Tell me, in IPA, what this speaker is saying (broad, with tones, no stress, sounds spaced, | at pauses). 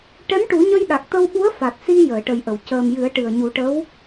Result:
ʈ ɛ˧˥ m ʈ u˨˩˦ ɲ ə˧ j ɗ a˨˩ k̚ t̪ ə˧ w ɓ u˧˥ ə̯ f a˨˩ t̚ s i˧ j əː˨˩˨ ʈ ə˨˩ j ʔ ə˨˩˨ w c əː˨˩ m j ɨ˨˩˦ ə̯ ʈ ɨ˨˩ ə̯ ɲ u˨˩˦ ʈ ə˧˥ w